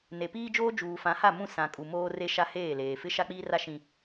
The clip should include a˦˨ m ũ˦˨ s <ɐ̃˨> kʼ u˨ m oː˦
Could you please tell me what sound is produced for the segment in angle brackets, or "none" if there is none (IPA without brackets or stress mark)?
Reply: ã˨